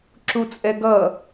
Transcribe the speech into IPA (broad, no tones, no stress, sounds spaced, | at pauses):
ǁ u t͡sʼ ɛ ɡ ʌ